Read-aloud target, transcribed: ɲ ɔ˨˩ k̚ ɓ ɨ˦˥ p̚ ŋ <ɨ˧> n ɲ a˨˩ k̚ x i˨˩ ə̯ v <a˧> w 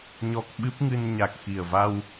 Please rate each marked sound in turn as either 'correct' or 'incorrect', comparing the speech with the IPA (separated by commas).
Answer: correct, correct